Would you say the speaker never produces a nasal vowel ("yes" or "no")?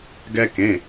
no